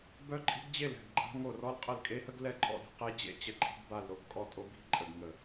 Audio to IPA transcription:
bœ˦ǃʼi̤˦ɡd͡ʑe˦˨lɛ̤˦˨ɡ ɡ͡ǃa̤˦ ŋo˦˨rɔ˦l qʼə˦˨lkʼe˦hə˦ɡ lɛ˦˨ǃʼɔ̰˦˨ɾi̤˦˨ qe˦ d͡ʑḛ˦t͡ɕə˦˨ǃʼi̤˦ɡ ba˦˨l ɾo˦ɡkʼɔ˦˨tʼo˦ bi̤˦ ǃʼə˦˨ɡŋə˦˨

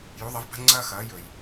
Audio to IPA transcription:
ju˩˧ðˤɐ˩˧vba̤˧ŋ͡ǀɐː˧ xɐː˩˧jɵ˩j

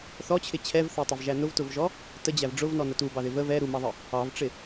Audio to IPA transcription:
θɔt͡ɕʰɪ t͡ɕʰɛvθɛtˤɪvʒæ nʊvtʊvʒɔ | təd͡ʑæv ɖ͡ʐʊvnɔnə tubɑðɪ və vɛ ɾumɑðˤə | ɑvʈ͡ʂɪ

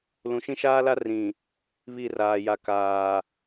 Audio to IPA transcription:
lũ˨ʃĩ˦ʃaː˦la˦ rĩ˨ | βi˦˨raː˨ja˨kaː˨

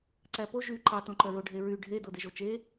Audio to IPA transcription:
ǀæpo ʒy ǃɑ tõǃœɹo ɖʱeɹy ɖʱe dodeʒot͡ʃe

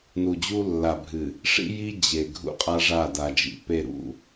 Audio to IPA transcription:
nu˨d͡ʑu˦lːa˨bʱɨ˨ | ʂḭ˦ji˦ d͡ʑe˨ ɡʱṵ˦qʼa˦ʐa˦˨da˨ d͡ʒḭ˨pe˨ɾṵ˨

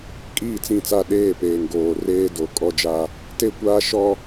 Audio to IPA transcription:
kʼiː˦˨t͡sĩ˦˨t͡sa˦˨ ɗeː˦˨peː˨ŋ ɡoː˨reː˦ do˨˦kʼɔ˦d͡ʒa˦ | te˦kʷaː˦ʃɔ˦

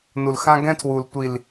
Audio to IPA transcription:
nu˨lxã˦ɡɛ̃˦ tʰwu˨ltʷi˨l

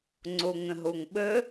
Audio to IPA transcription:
ŋ͡ǀoŋə̃ɦoŋɓə

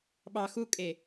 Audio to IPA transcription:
ɓɑ xukʼe

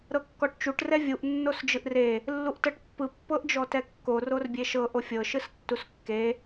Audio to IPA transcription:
ɾɤkːɔʈt͡ʃuʈ rɛvʲuʔ nːosd͡ʒɯʔre | lːuʔtɤʈpːɯ pːɤʔd͡ʒɔtɛkːo rorbʲeʃɤ ʔofʲɤ ʃɯstːuskːe

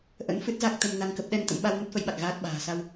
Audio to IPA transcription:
ʔə̰˧˥n fɨ˦˥t̚za˦˥k̚ t̪ə˧mna˧ŋkə˦˥p̚ ɗɛ˧n t̪ə̰˧˥mɓa˧w nə˦˥t̚fə˨˦jɓa˨˩k̚ ɣaː˦˥t̚ ɓa̤ː˨˩ sa˧w

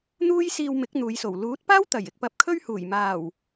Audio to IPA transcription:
n̪uː˥jsiː˧wmɪ˨˥k̚ n̪uː˨˧jso˨˩w luː˨˥t̚paː˥wt̪ɐ˨˩j ɪ˧k̚pɐ˧p̚kʰɵ˥ɥhuː˨˩j maː˨˩w

